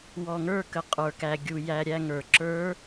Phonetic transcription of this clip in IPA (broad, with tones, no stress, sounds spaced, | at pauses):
w ɔ˨ ŋ ə˞˦˨ k ə˨ qʼ ə˞˨ k æ˨ ɡʲ u˨ j æ˦ ɾʲ æ˦ ŋ ə˞˨ ǁ ə˞˨˦